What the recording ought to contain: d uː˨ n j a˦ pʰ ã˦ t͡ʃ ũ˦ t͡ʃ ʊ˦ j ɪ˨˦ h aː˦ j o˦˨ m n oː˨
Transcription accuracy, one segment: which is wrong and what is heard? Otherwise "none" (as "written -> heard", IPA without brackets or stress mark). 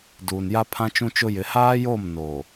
none